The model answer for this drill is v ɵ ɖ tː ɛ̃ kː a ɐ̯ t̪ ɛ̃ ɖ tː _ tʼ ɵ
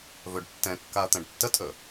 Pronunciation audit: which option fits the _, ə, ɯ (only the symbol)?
ə